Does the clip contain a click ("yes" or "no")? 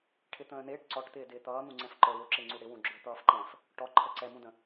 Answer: yes